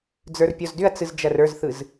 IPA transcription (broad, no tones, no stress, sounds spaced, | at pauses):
d͡z ə˞ r pʲ ɔ z d ʏ ɐ̯ t͡s ɯ z d͡ʒ ɐ r ə˞ z θ ɯ z